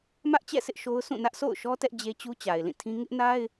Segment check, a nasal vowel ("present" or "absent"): present